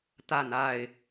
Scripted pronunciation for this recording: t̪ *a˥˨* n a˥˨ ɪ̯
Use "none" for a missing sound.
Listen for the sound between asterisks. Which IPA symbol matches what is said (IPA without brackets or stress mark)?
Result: a˥˨